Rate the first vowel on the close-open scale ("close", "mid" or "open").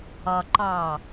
open